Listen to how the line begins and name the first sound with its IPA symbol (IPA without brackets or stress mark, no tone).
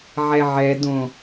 ʕ